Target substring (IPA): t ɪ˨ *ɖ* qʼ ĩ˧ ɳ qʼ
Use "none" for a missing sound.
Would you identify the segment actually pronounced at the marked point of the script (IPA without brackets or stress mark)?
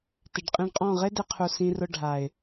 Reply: ɖ